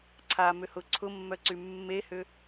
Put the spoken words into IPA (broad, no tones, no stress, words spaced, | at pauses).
ǀʰa mʏhʊ ǀʰʊmːœǀy mːehʏ